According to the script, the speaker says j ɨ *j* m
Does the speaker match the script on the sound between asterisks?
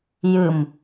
no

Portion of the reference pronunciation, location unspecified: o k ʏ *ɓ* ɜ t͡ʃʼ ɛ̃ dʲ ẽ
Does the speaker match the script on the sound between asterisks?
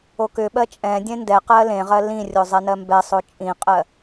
yes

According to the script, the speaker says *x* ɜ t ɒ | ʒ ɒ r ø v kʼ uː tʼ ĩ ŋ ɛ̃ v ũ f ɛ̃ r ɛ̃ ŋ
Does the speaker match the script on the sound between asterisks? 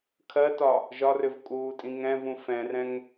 no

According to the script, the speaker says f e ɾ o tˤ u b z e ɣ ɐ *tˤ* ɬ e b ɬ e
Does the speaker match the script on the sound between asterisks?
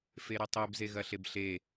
no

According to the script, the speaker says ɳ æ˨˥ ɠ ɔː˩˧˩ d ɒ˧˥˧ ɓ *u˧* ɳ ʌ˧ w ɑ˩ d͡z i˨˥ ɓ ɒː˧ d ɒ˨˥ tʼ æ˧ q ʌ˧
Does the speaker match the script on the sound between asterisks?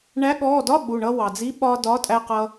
no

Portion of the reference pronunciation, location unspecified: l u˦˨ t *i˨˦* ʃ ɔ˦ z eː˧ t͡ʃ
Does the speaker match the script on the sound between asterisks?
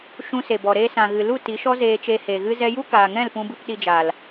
yes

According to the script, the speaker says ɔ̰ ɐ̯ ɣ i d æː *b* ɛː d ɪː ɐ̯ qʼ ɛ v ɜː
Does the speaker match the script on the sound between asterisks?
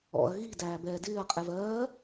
yes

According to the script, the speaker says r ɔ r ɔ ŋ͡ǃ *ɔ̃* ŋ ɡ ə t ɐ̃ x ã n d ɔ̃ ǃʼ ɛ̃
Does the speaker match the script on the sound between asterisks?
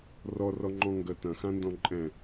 yes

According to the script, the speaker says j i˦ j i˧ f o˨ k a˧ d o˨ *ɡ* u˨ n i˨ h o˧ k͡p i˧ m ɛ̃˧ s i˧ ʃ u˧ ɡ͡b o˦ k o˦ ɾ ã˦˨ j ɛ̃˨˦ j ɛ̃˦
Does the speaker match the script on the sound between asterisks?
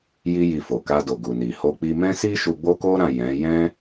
yes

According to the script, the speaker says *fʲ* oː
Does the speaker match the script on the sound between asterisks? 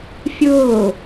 yes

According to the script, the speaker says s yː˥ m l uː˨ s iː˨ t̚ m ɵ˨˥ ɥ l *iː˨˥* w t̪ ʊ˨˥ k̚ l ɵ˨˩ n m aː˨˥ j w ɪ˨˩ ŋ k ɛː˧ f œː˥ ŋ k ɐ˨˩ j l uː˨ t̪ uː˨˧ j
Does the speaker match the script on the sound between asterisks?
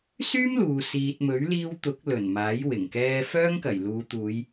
no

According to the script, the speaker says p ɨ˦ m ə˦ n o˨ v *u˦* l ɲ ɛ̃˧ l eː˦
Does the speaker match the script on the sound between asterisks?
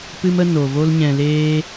no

